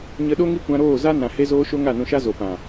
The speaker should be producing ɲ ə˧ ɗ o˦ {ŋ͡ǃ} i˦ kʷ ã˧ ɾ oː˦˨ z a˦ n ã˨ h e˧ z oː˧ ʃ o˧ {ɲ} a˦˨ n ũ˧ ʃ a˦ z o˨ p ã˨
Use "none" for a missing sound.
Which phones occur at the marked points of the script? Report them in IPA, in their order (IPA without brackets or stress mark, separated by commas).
ŋ, ŋ